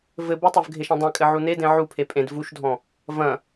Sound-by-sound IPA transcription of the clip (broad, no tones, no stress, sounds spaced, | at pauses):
v ɘ b u tˤ o v ɡʱ e ʃ ɛ̃ dˤ ɛ̃ kʼ ɘ ʕ u n e d ẽ ʕ u pʰ e pʼ ẽ d v u ʃ dʱ ɔ̃ | v ɐ̃